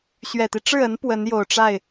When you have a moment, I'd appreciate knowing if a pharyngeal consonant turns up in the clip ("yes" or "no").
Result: no